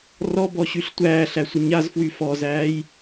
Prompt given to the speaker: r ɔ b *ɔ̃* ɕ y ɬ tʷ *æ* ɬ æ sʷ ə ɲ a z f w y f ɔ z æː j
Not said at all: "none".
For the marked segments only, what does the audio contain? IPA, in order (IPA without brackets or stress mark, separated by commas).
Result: ɔ, æː